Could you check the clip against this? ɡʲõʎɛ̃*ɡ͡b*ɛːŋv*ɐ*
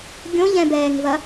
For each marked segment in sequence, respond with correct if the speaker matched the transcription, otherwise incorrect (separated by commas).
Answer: incorrect, correct